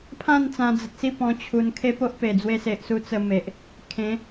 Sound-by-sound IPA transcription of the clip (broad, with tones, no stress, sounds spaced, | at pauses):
pʰ ã˥˧ n t͡s ã˧ d͡z ə˨ t̚ s i˥˧ p ɔ̃˧ t͡ɕʰ u˧ n kʰ e˦ p o˦ ʔ p e˨˩ d͡z w e˧ s e˨ ʔ s u˦ t͡s ə˧ m e˨ ʔ | kʰ ẽ˨˦